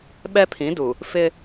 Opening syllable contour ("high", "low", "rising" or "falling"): high